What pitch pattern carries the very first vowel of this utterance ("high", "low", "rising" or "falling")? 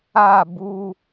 falling